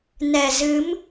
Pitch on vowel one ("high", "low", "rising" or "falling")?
low